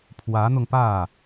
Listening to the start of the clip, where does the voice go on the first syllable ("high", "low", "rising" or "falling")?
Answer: rising